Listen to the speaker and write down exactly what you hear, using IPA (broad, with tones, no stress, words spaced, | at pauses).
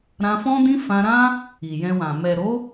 ɾã˧fɔ̃˦dĩ˦ fã˧ɾã˦ | i˨jɛ̃˧wã˨ mɛ˨ɾo˨˦